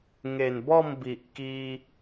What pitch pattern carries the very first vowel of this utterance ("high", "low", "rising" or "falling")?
low